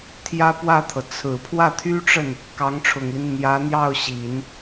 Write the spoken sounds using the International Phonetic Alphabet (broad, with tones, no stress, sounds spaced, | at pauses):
t̪ʰ j ä˥ p w ä˥˩ t̪ʰ ɤ˩ t͡sʰ ɹ̩˨˩ pʰ w ä˥˩ t̪ʰ y˥ ʈ͡ʂ ə˥˩ n | k ɑ˧˥ ŋ ʈ͡ʂʰ ʊ˨˩ ŋ l i˦ n n̪ j ä˧˥ n̪ j ɑ˥˩ ʊ̯ ɕ i˨˩˦ n